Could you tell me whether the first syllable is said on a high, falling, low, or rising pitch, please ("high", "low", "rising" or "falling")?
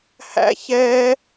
high